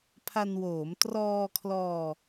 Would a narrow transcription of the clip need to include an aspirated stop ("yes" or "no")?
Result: yes